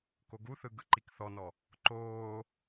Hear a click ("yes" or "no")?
yes